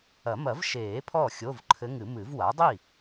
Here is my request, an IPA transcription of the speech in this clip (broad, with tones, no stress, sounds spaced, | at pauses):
ɐ˨˩˦ m ɐ˨˩˦ v ʃ eː˨˩˦ pʰ ɔː˥˩ xʲ o˧˥˧ v ǃʰ ɘ˧˥ ŋ ɨ˨˩˦ m ɨ˨˩˦ v w a˩˥ dˤ i˥˩